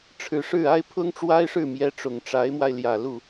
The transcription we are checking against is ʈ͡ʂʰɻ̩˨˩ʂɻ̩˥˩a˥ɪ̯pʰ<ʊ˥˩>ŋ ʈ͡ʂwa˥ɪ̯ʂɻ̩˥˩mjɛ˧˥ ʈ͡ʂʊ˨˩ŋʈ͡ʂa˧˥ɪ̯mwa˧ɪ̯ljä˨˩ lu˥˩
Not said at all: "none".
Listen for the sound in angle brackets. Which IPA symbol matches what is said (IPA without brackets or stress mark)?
ʊ˥